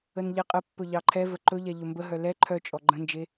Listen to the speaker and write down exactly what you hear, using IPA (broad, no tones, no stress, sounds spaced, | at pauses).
ə n ʎ ɛ qʼ ə pː ɵ ʎ ɑ ǃʰ ɛ v ə ǃ ɵ ʎ ɛ ʎ ɵ m b ə ɦ œ l ɛ ǃʰ œ t͡ʃʼ ɔ ɡ͡ǃ ə̃ n d͡ʒ e